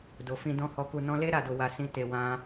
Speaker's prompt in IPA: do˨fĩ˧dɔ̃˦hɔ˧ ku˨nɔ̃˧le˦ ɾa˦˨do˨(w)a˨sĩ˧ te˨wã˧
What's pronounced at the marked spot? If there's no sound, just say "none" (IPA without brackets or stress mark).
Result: w